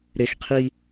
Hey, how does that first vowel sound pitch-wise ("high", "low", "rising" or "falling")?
high